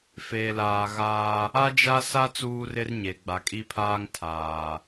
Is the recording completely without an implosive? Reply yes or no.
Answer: yes